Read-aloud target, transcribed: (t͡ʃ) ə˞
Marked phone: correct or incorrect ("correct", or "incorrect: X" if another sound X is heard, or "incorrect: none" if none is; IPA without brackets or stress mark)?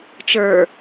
correct